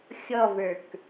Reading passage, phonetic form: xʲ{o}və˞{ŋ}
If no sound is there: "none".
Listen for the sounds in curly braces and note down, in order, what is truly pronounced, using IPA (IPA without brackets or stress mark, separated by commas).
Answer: ɔ, k